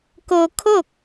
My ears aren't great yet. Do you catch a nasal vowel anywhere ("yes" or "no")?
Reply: no